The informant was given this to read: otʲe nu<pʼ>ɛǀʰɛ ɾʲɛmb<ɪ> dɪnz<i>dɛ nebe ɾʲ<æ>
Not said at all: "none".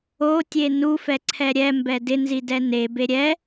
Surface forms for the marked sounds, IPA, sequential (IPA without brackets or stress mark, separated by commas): f, ɛ, i, ɛ